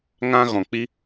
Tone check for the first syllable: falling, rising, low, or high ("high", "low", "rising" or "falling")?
high